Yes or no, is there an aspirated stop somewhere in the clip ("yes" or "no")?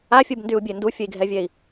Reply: no